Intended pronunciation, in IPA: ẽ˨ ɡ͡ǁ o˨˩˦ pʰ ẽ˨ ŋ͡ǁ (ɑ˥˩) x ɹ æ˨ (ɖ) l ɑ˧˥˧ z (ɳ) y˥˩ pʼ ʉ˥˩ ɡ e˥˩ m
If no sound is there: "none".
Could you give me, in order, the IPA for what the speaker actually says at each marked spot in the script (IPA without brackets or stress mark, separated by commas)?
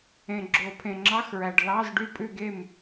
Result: ɑ˧˥˧, ɖ, ɖ